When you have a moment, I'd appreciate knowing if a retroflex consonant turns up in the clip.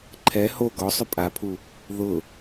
no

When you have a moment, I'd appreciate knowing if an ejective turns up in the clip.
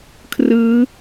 no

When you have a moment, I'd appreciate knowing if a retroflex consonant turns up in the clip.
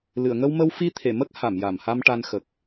yes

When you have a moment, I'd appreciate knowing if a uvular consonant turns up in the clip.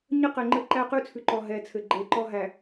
yes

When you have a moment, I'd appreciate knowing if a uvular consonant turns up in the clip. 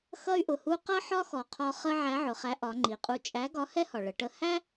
yes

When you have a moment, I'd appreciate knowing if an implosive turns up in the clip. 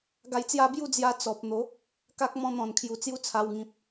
no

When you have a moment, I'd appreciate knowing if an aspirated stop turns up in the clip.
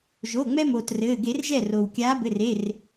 no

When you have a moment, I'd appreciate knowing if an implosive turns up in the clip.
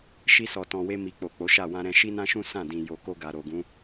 no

